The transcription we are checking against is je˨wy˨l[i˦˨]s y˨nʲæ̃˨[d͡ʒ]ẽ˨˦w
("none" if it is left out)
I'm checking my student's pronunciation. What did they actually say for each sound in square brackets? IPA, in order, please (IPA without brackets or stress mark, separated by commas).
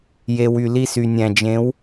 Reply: i˦˨, d͡ʒ